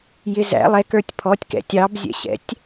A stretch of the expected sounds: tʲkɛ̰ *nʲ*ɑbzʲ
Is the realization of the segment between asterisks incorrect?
yes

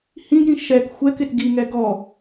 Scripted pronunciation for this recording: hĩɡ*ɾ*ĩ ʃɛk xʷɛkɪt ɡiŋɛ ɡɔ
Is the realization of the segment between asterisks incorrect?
no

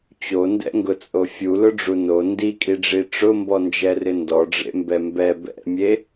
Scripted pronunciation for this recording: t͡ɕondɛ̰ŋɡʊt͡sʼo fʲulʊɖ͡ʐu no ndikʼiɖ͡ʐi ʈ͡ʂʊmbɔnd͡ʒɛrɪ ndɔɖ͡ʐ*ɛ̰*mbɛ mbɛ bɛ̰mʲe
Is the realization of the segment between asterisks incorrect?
yes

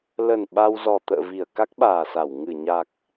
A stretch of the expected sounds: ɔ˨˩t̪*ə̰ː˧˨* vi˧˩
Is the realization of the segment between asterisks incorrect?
no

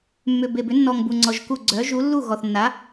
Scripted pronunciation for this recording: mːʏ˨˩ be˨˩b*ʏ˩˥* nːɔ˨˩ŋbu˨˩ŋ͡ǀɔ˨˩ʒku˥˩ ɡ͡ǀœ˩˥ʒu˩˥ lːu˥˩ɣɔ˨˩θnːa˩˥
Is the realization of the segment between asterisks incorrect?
no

